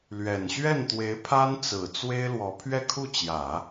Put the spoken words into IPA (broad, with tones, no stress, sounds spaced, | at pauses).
l ɥ ɛ˨˩ n ɕ ɥ ɛ˥˩ n t̪ w e˧˥ ɪ̯ pʰ a˥ n t͡s ɹ̩˨˩ t͡s w e˥ ɪ̯ l w ɔ˧˥ pʰ ɥ ɛ˥˧ kʰ u˥˩ t͡ɕ j ä˨˩˦